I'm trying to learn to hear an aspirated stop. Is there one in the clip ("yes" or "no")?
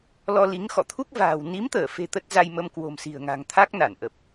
yes